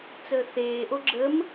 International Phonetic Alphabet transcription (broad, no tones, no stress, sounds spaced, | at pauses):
t͡s əː θ eː ʔ o ɡ͡ǁ ə m